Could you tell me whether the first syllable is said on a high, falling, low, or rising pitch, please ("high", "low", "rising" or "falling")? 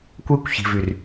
high